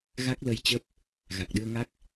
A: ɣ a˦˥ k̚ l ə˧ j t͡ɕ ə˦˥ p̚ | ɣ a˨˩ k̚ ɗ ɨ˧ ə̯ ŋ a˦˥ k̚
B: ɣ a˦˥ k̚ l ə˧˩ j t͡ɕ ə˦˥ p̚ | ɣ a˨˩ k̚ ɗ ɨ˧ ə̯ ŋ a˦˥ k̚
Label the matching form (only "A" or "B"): A